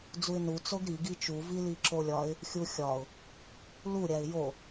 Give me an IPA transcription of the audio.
d͡z u ɪ̯ n u t͡s o ɡ ɾ i ɡ i t͡ʃ u v i l i ǁ o lʲ ɒ ɪ̯ | xʲ u xʲ ɒ ʊ̯ | l u ɾʲ æ ɪ̯ j o

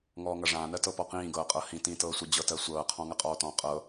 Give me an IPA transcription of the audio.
ŋ ɔː ŋ ɐ ʐ ãː n ɜ t ɤ p ɔ q ĩː ɡ ɤː qʼ ɤ h ĩ t ĩ t ɤː sʷ i d͡ʑ ɤ t ɜ sʷ ɤː qʰ ɔ̃ ŋ ɐ qʼ ɔː t ɔ̃ qʼ ɤ

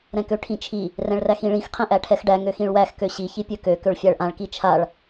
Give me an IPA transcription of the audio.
ɾ ɛ̃ k ø ʈʰ ĩ t͡ʃʰ i | r ɛ̃ ɭ r æ x ĩ ɭ ĩ x qʰ ɛ̃ ʔ æ ʈʰ ɛ x ɖ æ ŋ ø x ĩ ɭ w æ x k ø ɕ i ç i pʲ ø k ø k ø ɭ fʲ æ ɭ ʔ ã ɭ k i t͡ʃʰ a ɭ

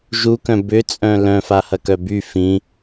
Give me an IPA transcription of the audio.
ʒ u k œ̃ b ʏ t͡sʼ œ̃ l œ̃ f a h ɐ k œ b y f ĩ

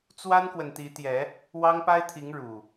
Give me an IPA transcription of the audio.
t͡s w a˦ n k w ə˨ n t̪ i˨˦ t̪ j ɛ˨˦ | w ɑ˦ ŋ p a˦ ɪ̯ t̪ʰ i˨˦ ŋ ɻ u˨˩

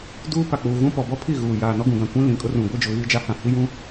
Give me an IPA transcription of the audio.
d uː˦ p a˨ k͡p uː˨ ɣ ũ˦ p ɔ˨ b ɔ˦ pʰ i˦˨ ɣ uː˨ j aː˨ n ɔ˦ ɡ ũ˨ ɡ ã˨ kʷ ĩ˦ l ĩ˨ kʼ ʊ˦ r ũ˨ ɡʷ i˦ d͡ʒ ʊ˨ ɣ iː˦ d͡ʒ a˦ h ã˨ h i˦ j ũ˦

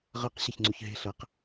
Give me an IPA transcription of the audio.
ʁ ʌ q ɕ e ç ŋ͡ǀ u ç ɦ e̤ ɬ ʌ q

